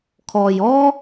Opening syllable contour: low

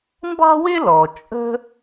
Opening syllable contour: high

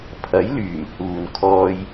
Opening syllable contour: rising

